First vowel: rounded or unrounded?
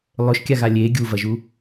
rounded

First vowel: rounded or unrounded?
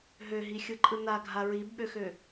rounded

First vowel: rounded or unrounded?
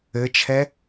unrounded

